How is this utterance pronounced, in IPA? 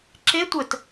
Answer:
ǁ e tʷ ə t

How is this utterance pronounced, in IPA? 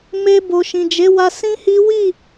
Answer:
m e˧ b o˨ ʃ ĩ˨ d͡ʒ e˨˦ w a˧ s ĩ˦ h i˦ w i˦˨

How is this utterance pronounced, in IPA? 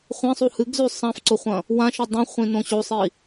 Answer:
χʷ ẽ sˤ u h ɨ ɡ z ʉ sˤ ã f ǀ o χʷ ɐ̃ | w ã ʃ o dˤ ĩ χʷ ĩ n õ ɕ o sˤ i

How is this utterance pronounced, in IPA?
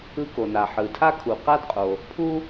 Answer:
ɯ˦ k o˨ n a˨ ħ ɯ˨ tʰ a˥ kʰ u˨ q a˥ d qʼ o˨ | pʰ u˥

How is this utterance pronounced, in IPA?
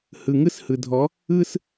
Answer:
h ɯ˨ ŋ ɯ˦ s h ɯ˨ dʱ ɔ˨˦ | ɯ˦ s

